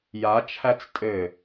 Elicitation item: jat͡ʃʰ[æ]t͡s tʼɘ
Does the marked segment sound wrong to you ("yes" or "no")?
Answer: no